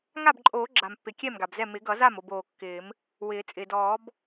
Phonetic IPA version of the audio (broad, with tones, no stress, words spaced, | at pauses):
ŋa˥˩bǃʼoː˨˩˦ɡ͡ǁa˩mpːɪ˩ kʲɛ˥˩mɡa˩bzɛ˥˩ mɪ˨˩˦ɡʌ˨˩˦za˥˩m o˥˩boː˩ kːɪː˨˩˦m | wɪː˨˩˦ t͡sʼɪː˩dɔː˨˩˦b